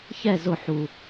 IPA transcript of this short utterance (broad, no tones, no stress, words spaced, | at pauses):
çɛ zʊ ħu